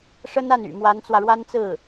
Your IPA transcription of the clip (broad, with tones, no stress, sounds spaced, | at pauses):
ʂ ə˥ n a˥˩ n y̰˨˩ m w a˧˥ n t͡s w ä˧ ɻ w a˥ n t͡s ɹ̩˥˩